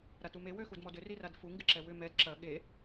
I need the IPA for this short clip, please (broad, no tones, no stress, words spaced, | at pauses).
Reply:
ɾatume wøxudmɔdʏ riradfu ŋɡɪǁɛwʏ mɛd ǁɐ ɠe